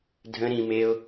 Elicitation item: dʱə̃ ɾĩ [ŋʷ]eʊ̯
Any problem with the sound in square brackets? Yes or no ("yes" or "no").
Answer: yes